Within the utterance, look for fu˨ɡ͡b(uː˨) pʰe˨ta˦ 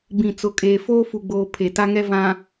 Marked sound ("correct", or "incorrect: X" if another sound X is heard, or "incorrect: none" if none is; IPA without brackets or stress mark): incorrect: oː˨